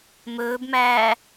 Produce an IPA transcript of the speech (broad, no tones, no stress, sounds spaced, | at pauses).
m ɵː b m æː